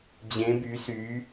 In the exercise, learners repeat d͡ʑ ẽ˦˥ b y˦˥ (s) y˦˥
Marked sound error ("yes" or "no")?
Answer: no